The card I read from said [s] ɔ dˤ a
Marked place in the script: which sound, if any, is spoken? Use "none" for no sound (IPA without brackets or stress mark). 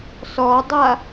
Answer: s